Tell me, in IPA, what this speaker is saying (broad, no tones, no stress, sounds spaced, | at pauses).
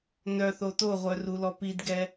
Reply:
n œ θ o t o ʁʷ œ r u l ɔ p i d ɡ ɛ